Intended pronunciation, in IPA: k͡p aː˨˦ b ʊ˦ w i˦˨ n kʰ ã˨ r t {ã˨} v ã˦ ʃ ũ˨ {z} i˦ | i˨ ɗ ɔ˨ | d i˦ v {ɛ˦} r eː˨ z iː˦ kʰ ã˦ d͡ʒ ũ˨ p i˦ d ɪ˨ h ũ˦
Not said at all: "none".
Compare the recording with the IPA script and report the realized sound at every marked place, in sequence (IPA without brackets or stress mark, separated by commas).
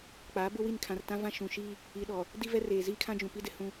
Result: ã˦, ʃ, ɛ˦